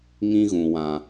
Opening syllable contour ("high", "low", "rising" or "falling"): high